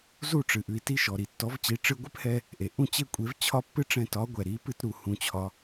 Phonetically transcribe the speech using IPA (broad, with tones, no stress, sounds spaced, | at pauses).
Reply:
z u˥˩ ʈ͡ʂ ɨ˩ ʔ ʉ˩ i̯ t i˧ ʃ ɔ˩ ɾ i˩ tː ɔ˩˥ v t͡ɕ i˩˥ ʈ͡ʂ ɨ˧ ɡʷ ɨ˥ p h ɛ˧ | ʔ e˩ ʔ ũ˥˩ t͡ɕ e˥˩ kʷʼ e˩˥ v t͡ɕʰ ɒ˥ pː ɨ˥ ʈ͡ʂ ɛ̃˧ t ɒ˩˥ ɡʷ ɛ˩ ɾ i˩˥ p ɨ˧ t ɾ u˩ h ũ˩ t͡ɕʰ ɒ˩